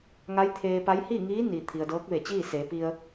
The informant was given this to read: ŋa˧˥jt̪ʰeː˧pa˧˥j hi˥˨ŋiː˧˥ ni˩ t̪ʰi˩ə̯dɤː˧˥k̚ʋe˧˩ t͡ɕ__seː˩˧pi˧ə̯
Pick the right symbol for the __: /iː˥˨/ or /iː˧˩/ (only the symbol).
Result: iː˥˨